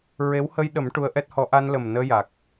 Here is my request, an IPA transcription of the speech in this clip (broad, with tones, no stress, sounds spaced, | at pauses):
ɹ e˧˥ w h ə˧ j ɗ ə˨˩˦ m ʈ u˧ ə̯ ʔ ɛ˦˥ t̚ h ɔ˧˥ ʔ a˧ n l ə˨˩ m n əː˧ j a˨˩ k̚